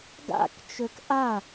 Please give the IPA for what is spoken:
ɡ a̰ k t͡ʃ ø k ʔ a

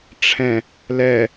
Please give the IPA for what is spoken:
ʈ͡ʂʰ ɛ̃ | l ɛ

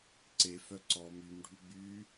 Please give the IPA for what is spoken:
ǀ e f œ ǀ ɔ m y m ɖʱ ʉ ɡ͡b y

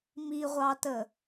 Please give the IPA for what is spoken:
m i ʁʷ ɑ t ə

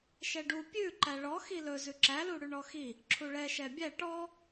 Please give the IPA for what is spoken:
ʃ ɛ ɖ u pʲ ʉ ǃ æ ɭ ɔ x i l ɵ z ʉ ǁ æ l u ɽ ʉ ɳ ɔ x i | ǁʰ u ɭ ɛ ʃ ɛ bʲ æ ʈ ɔ

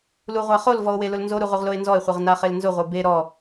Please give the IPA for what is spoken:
l u ʁʷ a χ o l v ɔ o̯ w e l ʊ l n z o ɾ u ʁ u ʁ l o e̯ n z ɔ e̯ χʷ e ʁ n a χ e l n z ʊ ʁʷ e b e ɾ ɔ

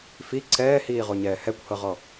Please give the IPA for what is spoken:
f i ǀʰ ɛː h iː ʁ o ɲ ɛː h ɛ kʷ h ɤ ʁ ɔ

